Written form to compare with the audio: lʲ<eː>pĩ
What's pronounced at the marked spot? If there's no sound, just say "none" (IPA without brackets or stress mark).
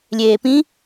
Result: eː